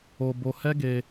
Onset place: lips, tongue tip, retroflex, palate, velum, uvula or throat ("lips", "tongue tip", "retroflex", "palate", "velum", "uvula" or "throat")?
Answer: lips